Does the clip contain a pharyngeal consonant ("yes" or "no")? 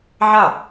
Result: yes